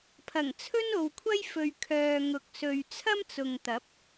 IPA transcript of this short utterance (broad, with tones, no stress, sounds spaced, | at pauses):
pʰ ɐ˨˩ ŋ t͡sʰ ɵ˥ n o˨ w kʷʰ ɐ˥ j f ɵ˨ ɥ kʰ œː˨ ŋ ʊ˨ k̚ s ɵ˨ ɥ t͡sʰ ɐ˥ m t͡s ʊ˨ ŋ t̪ ɐ˨˥ p̚